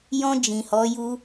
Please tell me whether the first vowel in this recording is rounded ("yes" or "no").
yes